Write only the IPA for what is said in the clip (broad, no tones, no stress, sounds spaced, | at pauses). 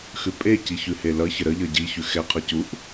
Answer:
x ʉ pʼ e c i ç ʉ h e l ʌ ç ə ɾ ə ʎ ʌ ɟ i ç ʉ x ɛ qʰ ʌ c u ʔ